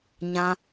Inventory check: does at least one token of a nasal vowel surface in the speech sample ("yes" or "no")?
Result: yes